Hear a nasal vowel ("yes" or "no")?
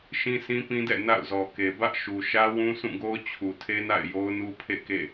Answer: yes